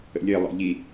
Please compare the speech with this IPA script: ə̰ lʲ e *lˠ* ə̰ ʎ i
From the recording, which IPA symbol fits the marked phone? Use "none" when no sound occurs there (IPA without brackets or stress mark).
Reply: lˠ